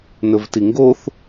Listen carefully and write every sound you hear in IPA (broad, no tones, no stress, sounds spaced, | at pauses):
n ɵ v t i ŋ ɡ o θ